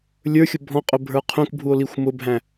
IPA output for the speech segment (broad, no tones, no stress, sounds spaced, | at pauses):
lʲ ə˞ xʲ ʊ bʱ ɔ̃ qʼ ʊ bʱ ə˞ qʰ ũ k bʱ u o̯ l i xʷ m ʊ bʱ æ̃